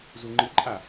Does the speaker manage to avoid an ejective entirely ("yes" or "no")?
no